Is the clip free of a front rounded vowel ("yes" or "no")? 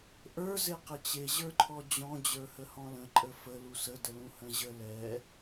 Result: yes